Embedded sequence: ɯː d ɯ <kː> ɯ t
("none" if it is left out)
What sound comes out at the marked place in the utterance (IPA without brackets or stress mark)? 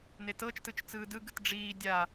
ɡ